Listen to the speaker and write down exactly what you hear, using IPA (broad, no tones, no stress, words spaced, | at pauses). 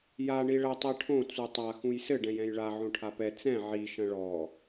ja ɳiɭɐ tˤiʈʰõ t͡sutˤa xũjsɘ ɖɛ̃jɛ̃jɭa ʕõʈʰapɛ t͡sɛ̃ ʕi ʃɐ̃ɭɔ